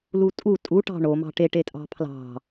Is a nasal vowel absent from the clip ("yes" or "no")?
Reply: yes